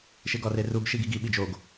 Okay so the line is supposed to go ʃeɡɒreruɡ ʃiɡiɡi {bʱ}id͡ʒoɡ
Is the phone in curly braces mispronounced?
yes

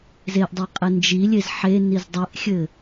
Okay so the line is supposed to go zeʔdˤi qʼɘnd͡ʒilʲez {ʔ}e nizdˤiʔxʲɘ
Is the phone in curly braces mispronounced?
yes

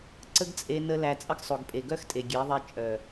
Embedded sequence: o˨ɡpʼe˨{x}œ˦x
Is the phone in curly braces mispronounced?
yes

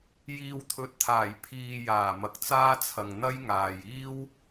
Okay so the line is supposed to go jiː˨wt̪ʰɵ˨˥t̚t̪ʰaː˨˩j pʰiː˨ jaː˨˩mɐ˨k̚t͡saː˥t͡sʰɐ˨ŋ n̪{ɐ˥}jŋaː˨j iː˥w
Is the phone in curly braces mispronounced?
no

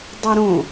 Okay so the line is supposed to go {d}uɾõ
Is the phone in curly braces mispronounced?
yes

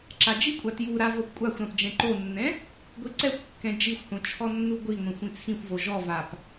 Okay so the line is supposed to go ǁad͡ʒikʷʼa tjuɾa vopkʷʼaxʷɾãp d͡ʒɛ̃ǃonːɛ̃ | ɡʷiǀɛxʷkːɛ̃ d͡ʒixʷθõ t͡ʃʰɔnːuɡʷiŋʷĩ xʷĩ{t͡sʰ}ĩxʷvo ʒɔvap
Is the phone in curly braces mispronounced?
no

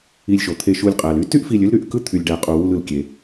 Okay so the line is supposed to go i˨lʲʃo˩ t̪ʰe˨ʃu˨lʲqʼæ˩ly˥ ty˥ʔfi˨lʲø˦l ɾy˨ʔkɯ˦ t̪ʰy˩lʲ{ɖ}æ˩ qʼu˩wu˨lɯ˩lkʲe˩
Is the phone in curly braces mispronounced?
no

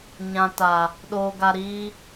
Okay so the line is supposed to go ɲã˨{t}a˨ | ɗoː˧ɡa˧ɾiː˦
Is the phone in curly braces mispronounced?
no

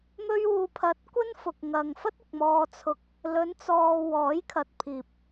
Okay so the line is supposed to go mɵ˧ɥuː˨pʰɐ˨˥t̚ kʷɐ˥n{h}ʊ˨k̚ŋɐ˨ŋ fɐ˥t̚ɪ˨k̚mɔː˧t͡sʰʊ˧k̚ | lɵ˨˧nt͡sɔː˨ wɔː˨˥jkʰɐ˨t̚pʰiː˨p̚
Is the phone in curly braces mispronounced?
yes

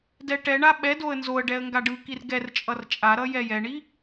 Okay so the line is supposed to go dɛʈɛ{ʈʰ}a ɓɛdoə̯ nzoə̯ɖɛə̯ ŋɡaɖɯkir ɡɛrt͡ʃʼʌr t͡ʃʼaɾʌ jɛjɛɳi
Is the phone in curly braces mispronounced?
yes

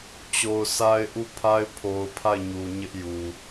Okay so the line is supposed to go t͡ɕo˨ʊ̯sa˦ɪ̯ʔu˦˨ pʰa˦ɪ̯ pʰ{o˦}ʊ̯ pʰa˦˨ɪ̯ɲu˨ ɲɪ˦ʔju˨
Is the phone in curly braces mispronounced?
yes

